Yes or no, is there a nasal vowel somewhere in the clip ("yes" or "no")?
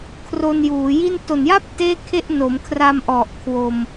no